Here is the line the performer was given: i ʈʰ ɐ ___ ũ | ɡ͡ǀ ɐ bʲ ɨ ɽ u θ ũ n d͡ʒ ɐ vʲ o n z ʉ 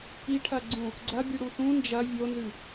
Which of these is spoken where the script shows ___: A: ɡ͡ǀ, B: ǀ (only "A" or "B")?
A